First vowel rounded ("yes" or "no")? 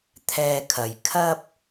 no